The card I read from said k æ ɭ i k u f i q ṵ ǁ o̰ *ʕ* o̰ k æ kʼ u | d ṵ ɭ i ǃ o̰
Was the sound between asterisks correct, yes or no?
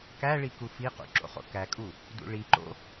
no